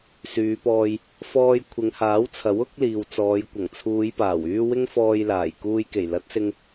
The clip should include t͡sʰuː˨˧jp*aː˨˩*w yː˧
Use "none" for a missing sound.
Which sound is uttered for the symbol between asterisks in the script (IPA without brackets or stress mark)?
aː˨˩